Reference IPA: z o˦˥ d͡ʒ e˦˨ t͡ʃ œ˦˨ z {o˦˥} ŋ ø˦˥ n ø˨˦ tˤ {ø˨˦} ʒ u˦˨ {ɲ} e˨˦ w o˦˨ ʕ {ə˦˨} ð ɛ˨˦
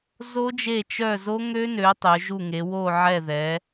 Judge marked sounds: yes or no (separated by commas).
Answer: yes, yes, no, no